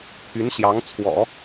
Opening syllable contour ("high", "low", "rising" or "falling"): rising